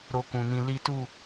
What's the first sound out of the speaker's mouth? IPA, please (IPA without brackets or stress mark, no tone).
ɾ